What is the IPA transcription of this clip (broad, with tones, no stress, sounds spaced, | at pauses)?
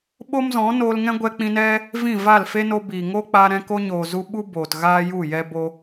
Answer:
ɓ o˦ m z ɔ̃˨˦ n oː˧ l ŋ ɛ̃˦ ɡʷ ɛ˦ k͡p ĩ˦ n ɛ˦ | v ĩ˦˨ v a˦˨ l f e˦ n o˧ b iː˨ ŋ oː˦ k͡p aː˧ ɾ ɛ̃˧ k o˧ ɲ oː˨ z u˧ ɓ u˦ b oː˨ t ɣ aː˦ j u˦˨ j ɛ˦ b o˦